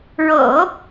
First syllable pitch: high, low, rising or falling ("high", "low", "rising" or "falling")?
low